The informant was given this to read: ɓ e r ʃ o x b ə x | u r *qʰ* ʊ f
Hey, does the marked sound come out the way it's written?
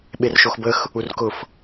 no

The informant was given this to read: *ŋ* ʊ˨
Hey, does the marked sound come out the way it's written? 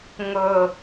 yes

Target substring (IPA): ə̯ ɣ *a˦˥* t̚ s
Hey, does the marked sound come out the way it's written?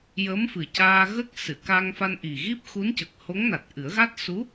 yes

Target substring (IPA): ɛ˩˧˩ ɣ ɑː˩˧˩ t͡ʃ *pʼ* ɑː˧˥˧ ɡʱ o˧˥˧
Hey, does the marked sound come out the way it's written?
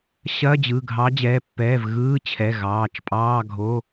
yes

